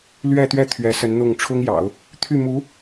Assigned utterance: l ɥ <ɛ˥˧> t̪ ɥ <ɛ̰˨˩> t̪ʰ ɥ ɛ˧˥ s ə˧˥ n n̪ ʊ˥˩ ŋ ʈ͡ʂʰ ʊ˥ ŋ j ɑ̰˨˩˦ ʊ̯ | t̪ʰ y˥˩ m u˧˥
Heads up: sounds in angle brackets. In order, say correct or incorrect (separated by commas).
correct, incorrect